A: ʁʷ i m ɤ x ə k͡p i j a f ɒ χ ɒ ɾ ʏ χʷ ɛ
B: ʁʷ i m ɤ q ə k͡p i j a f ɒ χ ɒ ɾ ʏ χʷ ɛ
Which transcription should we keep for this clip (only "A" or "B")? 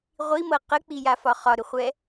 B